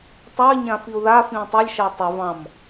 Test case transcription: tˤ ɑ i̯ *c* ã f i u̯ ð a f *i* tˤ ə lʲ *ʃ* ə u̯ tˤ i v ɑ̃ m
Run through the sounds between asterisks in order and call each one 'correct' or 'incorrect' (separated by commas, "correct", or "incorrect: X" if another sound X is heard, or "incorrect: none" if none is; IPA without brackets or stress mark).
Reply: incorrect: ɲ, incorrect: ĩ, correct